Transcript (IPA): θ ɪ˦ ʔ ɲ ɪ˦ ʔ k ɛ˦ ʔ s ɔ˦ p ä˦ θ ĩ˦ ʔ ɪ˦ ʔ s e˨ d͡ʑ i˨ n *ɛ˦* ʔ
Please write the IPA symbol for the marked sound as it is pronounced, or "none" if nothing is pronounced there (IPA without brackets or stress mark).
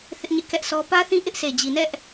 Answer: ɛ˦